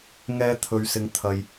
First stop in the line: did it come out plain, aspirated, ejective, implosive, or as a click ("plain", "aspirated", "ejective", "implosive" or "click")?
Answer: aspirated